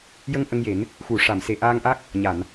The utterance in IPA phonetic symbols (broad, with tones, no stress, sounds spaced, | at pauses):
j ə˧ ŋ ʔ ə˧ ŋ j e˨˩˦ n | x u˨˩˨ ʂ a˨˩˨ m s e˨˩ ʔ aː˧ ŋ ʔ a˦˥ k̚ | ɲ a˨˩˨ n